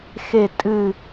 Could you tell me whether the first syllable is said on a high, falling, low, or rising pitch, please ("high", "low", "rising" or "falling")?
falling